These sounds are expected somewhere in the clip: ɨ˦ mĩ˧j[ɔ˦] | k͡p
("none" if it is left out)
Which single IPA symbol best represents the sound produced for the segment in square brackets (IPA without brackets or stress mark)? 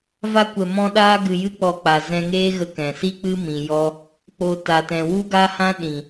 ɔ˦